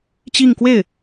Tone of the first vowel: falling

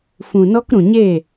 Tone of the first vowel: low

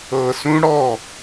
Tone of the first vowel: low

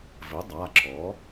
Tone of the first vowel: rising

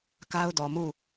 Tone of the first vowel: high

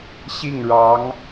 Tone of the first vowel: falling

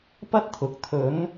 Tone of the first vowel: high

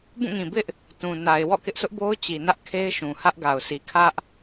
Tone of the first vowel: falling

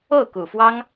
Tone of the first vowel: falling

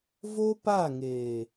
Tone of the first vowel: high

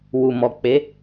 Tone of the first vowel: low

